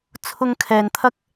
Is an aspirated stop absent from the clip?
no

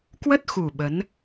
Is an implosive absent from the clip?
no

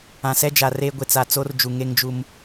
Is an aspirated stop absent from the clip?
yes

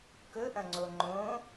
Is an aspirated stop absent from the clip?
yes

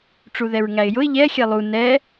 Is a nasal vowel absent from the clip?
yes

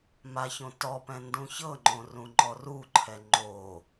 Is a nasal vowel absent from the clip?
no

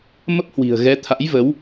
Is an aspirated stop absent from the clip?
no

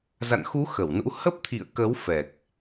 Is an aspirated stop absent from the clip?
no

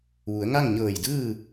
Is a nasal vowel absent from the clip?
yes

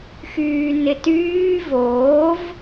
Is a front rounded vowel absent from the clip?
no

